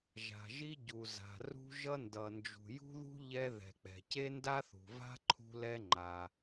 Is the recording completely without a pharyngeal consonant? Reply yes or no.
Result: yes